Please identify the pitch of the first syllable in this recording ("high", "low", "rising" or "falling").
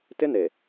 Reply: high